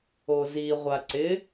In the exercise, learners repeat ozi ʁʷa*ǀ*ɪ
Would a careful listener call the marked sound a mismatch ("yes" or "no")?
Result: no